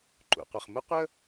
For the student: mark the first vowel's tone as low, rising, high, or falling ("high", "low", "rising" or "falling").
low